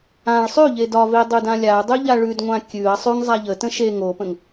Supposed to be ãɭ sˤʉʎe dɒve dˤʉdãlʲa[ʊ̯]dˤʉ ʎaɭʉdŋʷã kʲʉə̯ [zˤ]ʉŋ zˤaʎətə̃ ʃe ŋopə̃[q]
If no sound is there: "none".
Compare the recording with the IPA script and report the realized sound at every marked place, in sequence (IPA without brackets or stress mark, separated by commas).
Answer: ʊ̯, sˤ, ŋ